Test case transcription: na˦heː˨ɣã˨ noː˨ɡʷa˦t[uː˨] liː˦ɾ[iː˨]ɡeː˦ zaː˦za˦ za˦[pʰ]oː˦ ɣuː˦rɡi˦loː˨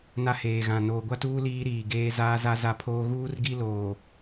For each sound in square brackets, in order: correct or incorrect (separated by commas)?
incorrect, correct, correct